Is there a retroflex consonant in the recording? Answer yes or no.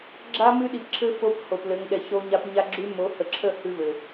no